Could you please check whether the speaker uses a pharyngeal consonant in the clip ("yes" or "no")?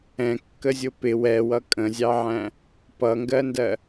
yes